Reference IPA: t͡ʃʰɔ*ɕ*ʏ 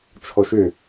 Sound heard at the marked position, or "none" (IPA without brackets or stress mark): ʃ